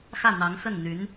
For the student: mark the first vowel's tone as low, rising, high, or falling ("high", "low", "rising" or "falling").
falling